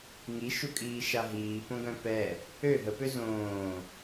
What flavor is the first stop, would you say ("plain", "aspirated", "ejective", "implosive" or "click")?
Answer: ejective